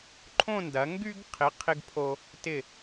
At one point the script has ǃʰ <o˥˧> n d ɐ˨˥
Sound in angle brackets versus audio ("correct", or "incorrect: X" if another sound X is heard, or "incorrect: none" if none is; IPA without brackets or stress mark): incorrect: õ˥˧